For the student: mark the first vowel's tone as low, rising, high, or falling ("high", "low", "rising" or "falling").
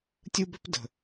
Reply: high